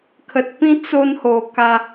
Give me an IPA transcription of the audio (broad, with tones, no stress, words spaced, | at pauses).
kʰə˨t̚ pĩ˦ t͡so˥˧nho˨˩ ka˧